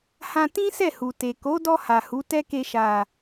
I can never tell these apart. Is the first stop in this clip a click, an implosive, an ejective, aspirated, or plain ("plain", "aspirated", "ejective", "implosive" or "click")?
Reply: plain